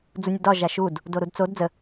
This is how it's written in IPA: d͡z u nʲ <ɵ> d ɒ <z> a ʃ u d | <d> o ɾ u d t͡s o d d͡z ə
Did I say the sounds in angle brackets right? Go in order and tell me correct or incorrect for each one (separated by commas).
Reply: incorrect, incorrect, correct